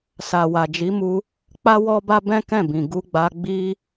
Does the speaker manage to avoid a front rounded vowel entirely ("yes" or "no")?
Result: yes